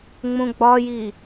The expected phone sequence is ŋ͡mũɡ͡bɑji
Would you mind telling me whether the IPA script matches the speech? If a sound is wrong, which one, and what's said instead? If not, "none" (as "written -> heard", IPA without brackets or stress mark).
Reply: ɑ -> ɒ